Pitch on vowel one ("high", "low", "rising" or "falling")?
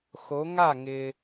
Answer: rising